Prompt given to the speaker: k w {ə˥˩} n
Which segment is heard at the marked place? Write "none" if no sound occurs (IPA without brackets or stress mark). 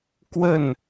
ə˥˩